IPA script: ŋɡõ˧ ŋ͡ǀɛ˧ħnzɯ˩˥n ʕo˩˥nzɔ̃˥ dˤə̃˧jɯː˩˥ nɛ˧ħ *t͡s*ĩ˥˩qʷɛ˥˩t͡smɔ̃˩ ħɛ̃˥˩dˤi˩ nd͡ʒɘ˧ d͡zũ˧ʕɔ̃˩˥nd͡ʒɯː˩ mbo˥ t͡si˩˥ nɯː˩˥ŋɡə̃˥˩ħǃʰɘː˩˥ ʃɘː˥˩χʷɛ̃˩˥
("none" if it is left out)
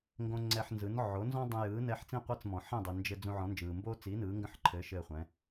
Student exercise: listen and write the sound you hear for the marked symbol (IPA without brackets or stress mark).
t͡s